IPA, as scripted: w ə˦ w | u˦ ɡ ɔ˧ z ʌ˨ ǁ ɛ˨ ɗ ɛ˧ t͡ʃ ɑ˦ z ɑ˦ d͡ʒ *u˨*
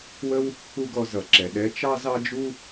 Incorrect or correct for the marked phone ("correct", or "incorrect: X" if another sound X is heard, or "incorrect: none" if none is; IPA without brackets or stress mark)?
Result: incorrect: u˦